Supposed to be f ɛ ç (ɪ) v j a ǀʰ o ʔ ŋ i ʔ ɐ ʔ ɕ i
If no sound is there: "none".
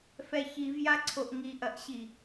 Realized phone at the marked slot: i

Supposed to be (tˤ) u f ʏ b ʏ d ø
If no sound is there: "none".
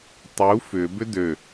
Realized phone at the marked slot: tˤ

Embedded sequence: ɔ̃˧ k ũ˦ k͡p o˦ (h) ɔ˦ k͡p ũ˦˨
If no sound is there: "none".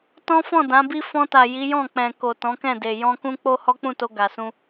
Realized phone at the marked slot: h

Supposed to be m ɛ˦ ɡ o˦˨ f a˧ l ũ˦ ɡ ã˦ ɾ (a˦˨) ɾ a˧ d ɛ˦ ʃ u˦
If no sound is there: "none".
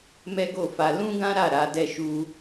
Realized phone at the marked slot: a˦˨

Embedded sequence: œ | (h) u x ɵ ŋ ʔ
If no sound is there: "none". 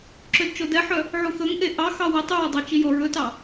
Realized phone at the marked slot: ʕ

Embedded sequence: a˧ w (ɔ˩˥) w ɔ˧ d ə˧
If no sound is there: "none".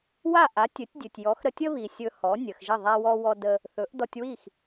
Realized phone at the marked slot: ɔ˧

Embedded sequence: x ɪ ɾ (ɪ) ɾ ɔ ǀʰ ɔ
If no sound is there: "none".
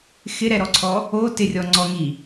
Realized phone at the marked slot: ɛ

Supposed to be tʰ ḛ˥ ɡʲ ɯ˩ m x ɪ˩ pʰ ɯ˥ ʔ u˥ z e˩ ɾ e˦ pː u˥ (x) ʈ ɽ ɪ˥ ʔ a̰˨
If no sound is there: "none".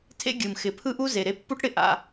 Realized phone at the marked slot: none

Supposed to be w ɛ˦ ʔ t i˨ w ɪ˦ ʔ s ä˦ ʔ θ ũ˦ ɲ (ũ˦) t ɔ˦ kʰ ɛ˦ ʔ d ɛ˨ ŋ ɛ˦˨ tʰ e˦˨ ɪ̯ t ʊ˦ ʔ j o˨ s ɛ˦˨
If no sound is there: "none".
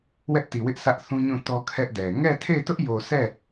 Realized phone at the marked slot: ũ˦˨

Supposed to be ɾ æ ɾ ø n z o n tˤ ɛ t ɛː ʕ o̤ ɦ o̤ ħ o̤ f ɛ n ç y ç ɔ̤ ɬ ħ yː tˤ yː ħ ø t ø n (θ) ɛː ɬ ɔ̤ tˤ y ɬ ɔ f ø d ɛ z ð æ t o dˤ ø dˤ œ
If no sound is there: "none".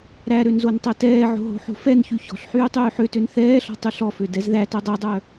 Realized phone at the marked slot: θ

